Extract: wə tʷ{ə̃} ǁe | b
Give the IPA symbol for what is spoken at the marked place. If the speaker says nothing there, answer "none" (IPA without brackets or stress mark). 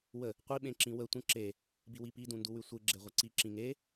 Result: ə̃